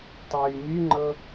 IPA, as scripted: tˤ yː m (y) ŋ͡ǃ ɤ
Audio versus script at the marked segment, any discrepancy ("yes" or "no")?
no